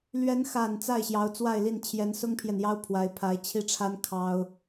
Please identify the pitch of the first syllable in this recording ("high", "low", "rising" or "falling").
rising